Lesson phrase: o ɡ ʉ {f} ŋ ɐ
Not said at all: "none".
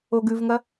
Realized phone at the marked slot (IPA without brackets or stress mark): v